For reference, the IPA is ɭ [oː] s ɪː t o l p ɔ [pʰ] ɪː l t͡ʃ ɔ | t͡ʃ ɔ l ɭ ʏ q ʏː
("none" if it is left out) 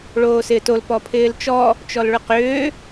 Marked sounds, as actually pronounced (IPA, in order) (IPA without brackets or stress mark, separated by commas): oː, pʰ